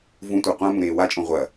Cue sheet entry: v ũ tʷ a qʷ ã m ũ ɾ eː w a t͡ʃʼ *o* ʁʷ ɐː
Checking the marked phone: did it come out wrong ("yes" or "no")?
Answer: yes